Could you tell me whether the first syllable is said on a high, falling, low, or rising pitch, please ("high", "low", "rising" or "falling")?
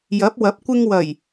rising